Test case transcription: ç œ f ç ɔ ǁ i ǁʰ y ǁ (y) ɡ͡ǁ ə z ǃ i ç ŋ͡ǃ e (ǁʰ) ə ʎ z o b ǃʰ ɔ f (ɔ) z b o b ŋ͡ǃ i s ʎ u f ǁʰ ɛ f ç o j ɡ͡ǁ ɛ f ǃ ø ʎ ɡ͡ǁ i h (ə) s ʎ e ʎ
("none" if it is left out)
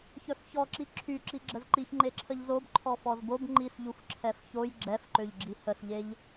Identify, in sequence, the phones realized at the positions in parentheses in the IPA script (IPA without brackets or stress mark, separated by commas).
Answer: i, ǁʰ, ɔ, ə